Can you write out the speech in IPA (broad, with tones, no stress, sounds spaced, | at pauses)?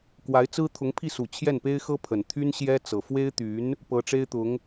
k w a˧˥ ɪ̯ t͡s ɹ̩˥ t̪ʰ ʊ˧˥ ŋ pʰ i˥˩ s u˨˩ t͡ɕʰ j ɛ˥˩ n p e˥ ɪ̯ x ɤ˥ pʰ ə˨˩ n t̪ʰ y˥ n ɕ j ɛ˥ t͡s ɤ˨˩ f w e˥ ɪ̯ t̪ y˧˥ n | p ɤ˧˥ ʈ͡ʂ e˥ ɪ̯ t̪ ʊ˧˥ ŋ